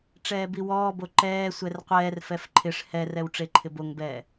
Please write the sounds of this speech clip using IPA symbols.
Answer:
ʈ͡ʂ ɛː b i w ɔː b o ǃ ɛː sʷ ɛ r qʷ ɛː r f ɛ f ǃʰ ɪ ʂ h ɛ r ɛ w ʈ͡ʂ e ǃʰ ɪ b o ŋ b ɛː

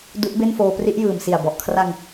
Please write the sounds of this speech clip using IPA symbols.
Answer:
d u˦˥ ʔ b e˥˩ n f oː˧ p r i˦˥ ʔ j ɯː˨˩ m s i˨˩ a̯ b ɔ˨˩ ʔ kʰ r a˧ ŋ

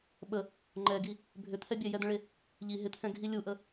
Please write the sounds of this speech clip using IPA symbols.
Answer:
ɓ ə | ŋ͡ǃ ɛ ɡ i | bʱ ʏ t̪ʰ ɛ bʲ ɛ j ɛ d̪ ə̃ ɭ e | ʎ i ɦ ɪ t̪ʰ ɛ̃ ɡʱ i lʲ u ʔ ə

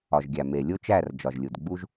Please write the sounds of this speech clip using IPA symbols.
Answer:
ɒ˩ ʒ ɡʲ æ˩ m e˩ lʲ o˦ t͡ʃ æ˦˨ r d͡ʒ ɒ˩ ʒ lʲ u˩ d ɡ͡b u˦ ʒ

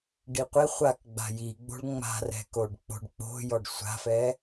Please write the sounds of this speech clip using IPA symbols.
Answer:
ɖ i qʷ e χʷ a k ɡ͡b a̤ j i ɡ͡b o̤ ɭ ŋ͡m a̤ r ɛ̤ k o ɖ k͡p o̤ ɖ k͡p o̤ j ɔ ɖ sʷ a̤ f ɛ

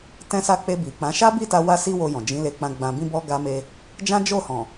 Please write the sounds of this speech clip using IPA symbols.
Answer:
t ɛ̃˦ s a˦ k͡p e˧ b i˨ k͡p ã˨˦ ʃ a˦ b i˦˨ t a˧ w a˦ s i˦ w o˧ j ɔ̃˨ d͡ʒ ĩ˨˦ l e˧ k͡p ã˧ ɡ͡b ã˧ b ĩ˦ b ɔ˦ ɡ a˦ m e˦ | d͡ʒ ã˦ d͡ʒ o˦˨ h ɔ̃˨

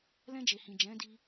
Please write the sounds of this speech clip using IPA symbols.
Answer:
l ɛ̃˧ d͡ʒ e˨ h ĩ˨ d͡ʒ ɛ̃˨˦ d i˧

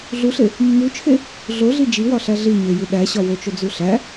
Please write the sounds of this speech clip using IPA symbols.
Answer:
ɮ u ɬ e | mː u t͡ʃʰ e | ɮ o ɮ i d͡ʒ i w ɒ ɬ æ ɮ i ɲ e j i ɗ æ ɕ ɒ w o t͡ʃ o d͡z u ɬ æ

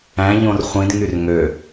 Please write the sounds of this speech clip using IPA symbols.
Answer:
æ̃ ʎ õ r χʷ ĩ d ŋ y r ŋ ø

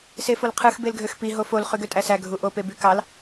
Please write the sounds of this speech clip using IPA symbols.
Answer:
s e f o l qʰ ɯ x b e l ɡʱ ø x p i ɦ o f o l χ y ɡ ø tʼ æ s æ ɡʱ u ʔ o p e b y k ɑ l

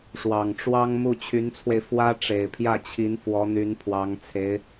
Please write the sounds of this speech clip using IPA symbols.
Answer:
ʂ w ɑ˨˩ ŋ ʈ͡ʂ w ɑ˥ ŋ m u˥˩ t͡ɕʰ y˧˥ n t͡sʰ w e˧ ɪ̯ f w ä˥ ʈ͡ʂ e˨˩ ɪ̯ pʰ j ä˥˩ t͡ɕʰ i˧˥ n f w ɔ˧˥ n̪ y˧˥ n pʰ w ɑ˧˥ ŋ t͡sʰ e˧˥ ɪ̯

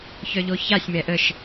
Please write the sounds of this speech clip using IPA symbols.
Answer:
ç œ ʎ o ç a sʲ m ɛ ʔ ə ʃ

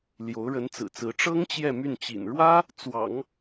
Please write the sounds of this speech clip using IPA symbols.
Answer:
l j o˧˥ ʊ̯ ɻ ə˧˥ n t͡s ɹ̩˨˩ t͡s ɹ̩˧˥ ʈ͡ʂ ɤ˥ ŋ t͡ɕ j ɛ˥˧ m y˥˩ n t͡ɕ ḭ˨˩ n ɻ w ä˥ | t͡s w ɑ̰˨˩˦ ŋ

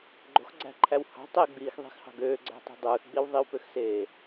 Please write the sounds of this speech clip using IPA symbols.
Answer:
ɡ͡ǃ o̤ x ɡ͡ǀ æ̤ ǃʰ æ w h ɑ̤ tˤ e ɡ͡b iː x ðˤ i̤ x h ɑ̤ ɡ øː ɡ͡ǀ æ̤ tˤ i̤ dˤ ɯː x ɡ͡b i w ðˤ i w p ø x s eː

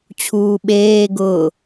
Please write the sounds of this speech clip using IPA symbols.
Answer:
t͡ɕʰ uː ɓ eː ɡ ʊː

